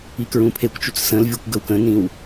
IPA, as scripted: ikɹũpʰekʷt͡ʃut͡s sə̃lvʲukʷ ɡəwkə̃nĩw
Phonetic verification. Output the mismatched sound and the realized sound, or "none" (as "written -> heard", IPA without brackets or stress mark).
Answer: none